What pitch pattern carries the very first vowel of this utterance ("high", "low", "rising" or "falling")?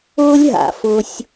high